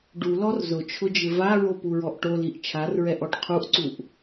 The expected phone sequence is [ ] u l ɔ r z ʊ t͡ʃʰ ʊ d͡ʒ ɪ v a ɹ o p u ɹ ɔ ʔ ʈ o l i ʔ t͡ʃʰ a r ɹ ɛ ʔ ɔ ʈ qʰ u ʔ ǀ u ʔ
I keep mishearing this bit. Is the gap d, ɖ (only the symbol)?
ɖ